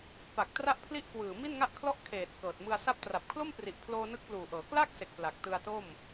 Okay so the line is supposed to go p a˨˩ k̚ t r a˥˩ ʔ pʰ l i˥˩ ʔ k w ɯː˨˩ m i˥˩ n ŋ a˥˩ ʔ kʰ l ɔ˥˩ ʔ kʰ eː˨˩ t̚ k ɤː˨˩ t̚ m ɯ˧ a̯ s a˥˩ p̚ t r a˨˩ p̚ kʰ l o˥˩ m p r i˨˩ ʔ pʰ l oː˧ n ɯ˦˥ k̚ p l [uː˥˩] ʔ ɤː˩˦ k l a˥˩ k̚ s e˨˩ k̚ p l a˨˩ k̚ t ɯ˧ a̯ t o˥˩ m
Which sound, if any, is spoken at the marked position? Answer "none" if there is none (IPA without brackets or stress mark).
uː˨˩